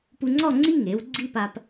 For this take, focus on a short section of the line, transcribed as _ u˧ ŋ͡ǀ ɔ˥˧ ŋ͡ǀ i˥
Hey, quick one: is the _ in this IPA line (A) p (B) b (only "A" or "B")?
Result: A